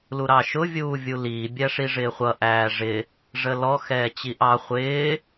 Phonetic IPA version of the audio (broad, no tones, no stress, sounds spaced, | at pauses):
l u ɾ ɑ ʃ ʊ vʲ uː vʲ u l iː bʲ æ ʂ i ʐ ɪː χʷ ʌ ʔ æː ʐ ɪ | ʐ ə l ɔ x ɛː t͡ɕ i ʔ ɑ χʷ ɪː